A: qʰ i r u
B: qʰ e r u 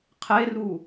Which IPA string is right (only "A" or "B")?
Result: B